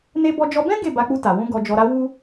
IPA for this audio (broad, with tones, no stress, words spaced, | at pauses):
ne˦ bɔ˧d͡ʒɔ˧bɛ̃˦ ɡe˦˨ ba˧k͡pu˧ ta˨wũ˧ ɡɔ˧d͡ʒɔ˧ɾa˦ wu˦